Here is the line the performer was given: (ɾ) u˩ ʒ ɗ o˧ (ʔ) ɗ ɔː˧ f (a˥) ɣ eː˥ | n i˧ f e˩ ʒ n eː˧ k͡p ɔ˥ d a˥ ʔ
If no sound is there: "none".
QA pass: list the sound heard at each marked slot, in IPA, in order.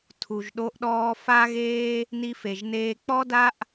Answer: tʰ, ʔ, a˥

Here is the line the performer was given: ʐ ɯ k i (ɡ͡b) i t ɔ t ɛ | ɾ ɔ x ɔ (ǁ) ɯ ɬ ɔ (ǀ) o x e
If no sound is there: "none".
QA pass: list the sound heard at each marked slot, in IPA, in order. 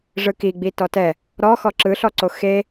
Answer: ɡ͡b, ǁ, ǀ

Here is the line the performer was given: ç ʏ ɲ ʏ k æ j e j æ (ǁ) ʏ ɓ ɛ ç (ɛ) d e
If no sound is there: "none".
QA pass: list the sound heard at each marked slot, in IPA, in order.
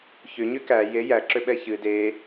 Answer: ǁ, ɨ

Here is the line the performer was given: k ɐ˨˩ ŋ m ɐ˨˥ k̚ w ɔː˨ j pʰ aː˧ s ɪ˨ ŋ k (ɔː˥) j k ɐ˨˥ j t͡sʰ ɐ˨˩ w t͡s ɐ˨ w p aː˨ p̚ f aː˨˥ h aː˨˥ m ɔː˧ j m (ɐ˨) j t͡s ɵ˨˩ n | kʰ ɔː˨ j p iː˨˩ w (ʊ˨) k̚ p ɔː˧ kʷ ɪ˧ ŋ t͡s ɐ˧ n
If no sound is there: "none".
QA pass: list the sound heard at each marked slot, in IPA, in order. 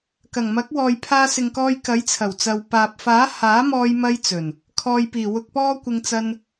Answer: ɔː˧, ɐ˧, ʊ˨

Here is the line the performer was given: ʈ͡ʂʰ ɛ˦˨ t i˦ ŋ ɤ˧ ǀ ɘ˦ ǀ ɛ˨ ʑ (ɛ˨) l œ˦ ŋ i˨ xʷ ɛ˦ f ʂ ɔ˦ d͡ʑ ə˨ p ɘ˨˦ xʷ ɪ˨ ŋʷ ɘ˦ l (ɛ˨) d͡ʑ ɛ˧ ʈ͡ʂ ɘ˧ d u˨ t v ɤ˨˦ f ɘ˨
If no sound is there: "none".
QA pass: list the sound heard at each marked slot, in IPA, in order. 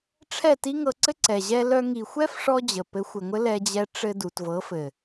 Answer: ɛ˦, ɛ˧

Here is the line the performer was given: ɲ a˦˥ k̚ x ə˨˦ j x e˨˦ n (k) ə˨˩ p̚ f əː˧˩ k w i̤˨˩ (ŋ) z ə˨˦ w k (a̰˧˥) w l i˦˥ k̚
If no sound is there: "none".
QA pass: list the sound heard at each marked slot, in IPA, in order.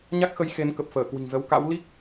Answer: k, ŋ, a̰˧˥

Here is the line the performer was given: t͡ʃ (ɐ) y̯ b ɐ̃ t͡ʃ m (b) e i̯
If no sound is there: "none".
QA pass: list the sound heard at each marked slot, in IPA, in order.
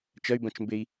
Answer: ɐ, b

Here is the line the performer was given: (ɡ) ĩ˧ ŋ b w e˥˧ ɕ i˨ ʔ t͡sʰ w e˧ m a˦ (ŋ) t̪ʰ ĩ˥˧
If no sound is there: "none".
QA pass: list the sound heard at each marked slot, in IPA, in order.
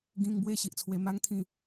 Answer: ɡ, ŋ

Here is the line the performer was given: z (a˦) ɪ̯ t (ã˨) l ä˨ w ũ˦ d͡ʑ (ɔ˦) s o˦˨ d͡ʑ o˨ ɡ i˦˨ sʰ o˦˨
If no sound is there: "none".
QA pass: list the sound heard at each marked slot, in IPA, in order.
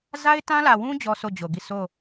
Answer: a˦, ã˦, ɔ˦

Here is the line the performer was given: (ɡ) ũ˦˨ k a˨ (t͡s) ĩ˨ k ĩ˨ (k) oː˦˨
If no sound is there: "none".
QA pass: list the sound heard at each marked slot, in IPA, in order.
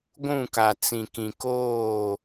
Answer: ɡʷ, t͡s, k

